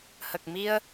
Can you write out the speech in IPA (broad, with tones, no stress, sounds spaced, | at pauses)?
h ə˨˩ k̚ m i˧ ə̯